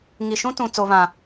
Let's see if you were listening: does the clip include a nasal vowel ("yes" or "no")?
yes